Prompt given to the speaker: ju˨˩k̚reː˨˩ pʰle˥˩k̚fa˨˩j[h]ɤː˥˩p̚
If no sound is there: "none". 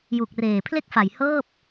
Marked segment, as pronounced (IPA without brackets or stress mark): h